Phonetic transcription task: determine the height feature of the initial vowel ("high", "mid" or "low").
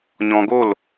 mid